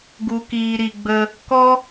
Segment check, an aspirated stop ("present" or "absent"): absent